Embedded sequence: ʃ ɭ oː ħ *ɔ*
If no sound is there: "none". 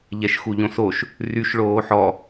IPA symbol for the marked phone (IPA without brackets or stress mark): ɔ